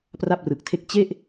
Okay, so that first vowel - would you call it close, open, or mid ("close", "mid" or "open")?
open